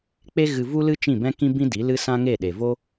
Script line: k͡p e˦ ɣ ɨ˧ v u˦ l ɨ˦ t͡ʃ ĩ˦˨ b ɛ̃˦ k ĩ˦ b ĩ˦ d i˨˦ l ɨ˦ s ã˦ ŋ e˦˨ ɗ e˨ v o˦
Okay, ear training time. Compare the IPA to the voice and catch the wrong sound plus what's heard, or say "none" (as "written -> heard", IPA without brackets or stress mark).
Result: none